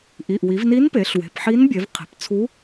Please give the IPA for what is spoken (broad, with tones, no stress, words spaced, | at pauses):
ʔi˩˧˩ʔwi˩˧vni˧˥npe˩˧ɬ we̤˩˧˩p ħi˧˥nbʲe˩˧vqʰe̤˩˧pt͡sʰu˧˥